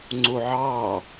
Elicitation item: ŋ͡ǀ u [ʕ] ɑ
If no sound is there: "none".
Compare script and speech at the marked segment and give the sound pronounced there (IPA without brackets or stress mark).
ʕ